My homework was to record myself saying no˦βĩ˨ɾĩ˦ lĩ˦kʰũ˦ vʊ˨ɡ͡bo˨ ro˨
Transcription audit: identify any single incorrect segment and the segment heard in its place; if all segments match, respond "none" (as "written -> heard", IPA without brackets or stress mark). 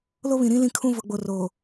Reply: n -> l